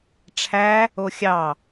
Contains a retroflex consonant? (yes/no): yes